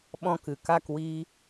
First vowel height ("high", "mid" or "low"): mid